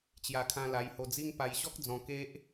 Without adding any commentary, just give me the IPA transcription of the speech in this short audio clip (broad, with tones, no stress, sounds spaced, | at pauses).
t͡ɕ j a˧ kʰ ã˧ l a˧ j h o˧ d͡z i˦ ŋ p a˧ j ɕ ɔ˦ k̚ d͡z ɔ̃˧ k e˦ ʔ